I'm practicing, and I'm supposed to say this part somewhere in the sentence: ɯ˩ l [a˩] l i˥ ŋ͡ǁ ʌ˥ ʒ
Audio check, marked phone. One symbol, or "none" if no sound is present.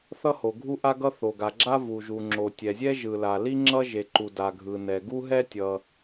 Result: a˩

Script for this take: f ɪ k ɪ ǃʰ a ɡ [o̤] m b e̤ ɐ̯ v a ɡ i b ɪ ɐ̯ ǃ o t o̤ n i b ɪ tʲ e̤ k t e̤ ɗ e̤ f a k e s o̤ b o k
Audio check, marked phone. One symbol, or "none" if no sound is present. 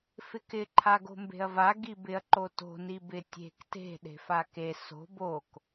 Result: o̤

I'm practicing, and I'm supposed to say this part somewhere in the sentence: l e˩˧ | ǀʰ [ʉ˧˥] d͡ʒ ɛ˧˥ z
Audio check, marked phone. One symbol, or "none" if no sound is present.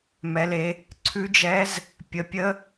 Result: ʉ˧˥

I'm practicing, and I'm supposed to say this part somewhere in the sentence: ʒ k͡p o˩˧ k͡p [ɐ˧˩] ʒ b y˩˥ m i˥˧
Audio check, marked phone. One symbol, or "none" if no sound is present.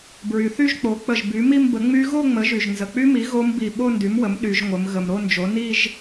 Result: ə˧˩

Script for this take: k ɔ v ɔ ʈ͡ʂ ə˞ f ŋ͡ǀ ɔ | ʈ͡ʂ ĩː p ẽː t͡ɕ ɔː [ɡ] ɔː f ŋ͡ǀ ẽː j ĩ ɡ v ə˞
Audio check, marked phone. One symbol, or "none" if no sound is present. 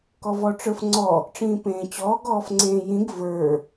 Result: ɡ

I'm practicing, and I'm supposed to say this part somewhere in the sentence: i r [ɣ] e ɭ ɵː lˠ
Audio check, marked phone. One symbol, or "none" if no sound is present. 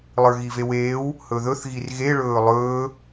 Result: ɣ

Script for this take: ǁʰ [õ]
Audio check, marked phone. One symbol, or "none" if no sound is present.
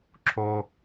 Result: o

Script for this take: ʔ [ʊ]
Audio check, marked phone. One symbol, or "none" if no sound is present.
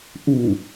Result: u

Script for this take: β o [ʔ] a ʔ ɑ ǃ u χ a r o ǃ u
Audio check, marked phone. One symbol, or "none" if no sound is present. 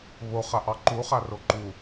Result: χ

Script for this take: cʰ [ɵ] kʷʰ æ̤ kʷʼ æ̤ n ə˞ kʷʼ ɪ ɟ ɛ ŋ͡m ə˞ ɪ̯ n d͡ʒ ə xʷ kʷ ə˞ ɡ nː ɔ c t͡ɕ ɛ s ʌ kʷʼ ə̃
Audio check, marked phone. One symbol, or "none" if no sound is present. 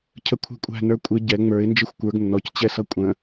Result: ə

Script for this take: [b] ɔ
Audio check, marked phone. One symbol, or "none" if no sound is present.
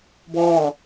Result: b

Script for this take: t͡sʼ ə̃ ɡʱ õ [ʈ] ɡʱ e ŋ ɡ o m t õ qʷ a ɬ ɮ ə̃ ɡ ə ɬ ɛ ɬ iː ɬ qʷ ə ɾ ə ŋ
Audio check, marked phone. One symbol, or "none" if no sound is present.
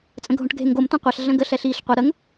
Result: ʈ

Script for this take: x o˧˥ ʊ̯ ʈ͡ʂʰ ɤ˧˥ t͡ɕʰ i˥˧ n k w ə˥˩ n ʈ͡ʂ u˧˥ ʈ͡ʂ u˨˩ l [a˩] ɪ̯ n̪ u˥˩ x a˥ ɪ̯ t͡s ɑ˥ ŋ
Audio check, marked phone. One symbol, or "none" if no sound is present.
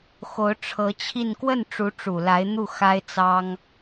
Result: a˧˥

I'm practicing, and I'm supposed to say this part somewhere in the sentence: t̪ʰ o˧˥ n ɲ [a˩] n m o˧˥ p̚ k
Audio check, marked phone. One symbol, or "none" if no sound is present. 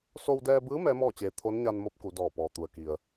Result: a˧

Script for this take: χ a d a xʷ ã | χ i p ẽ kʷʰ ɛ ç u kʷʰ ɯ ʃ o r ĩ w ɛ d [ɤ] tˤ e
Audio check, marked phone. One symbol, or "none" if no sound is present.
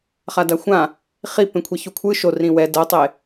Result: ɤ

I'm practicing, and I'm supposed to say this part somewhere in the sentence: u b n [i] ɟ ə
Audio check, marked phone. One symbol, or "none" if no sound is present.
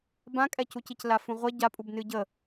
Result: ɨ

